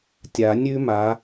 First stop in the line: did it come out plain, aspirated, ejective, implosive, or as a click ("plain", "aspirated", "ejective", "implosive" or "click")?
plain